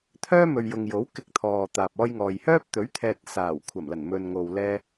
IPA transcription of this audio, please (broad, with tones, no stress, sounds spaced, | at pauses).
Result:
t̪ʰ œː˥ m ɵ˨ ɥ j ʊ˨ ŋ j o˨˥ w k ɪ˧ k̚ t̪ʰ ɔː˨ t̪ aː˨ p̚ ɔː˥ j ŋ ɔː˨ j h œː˥ p̚ t̪ ɵ˨˥ ɥ t̪ʰ ɛː˨ t̚ s aː˨˩ w kʷʰ ɐ˨˩ m l ɐ˨˩ n m ɵ˨ n ŋ o˨ w l ɛː˧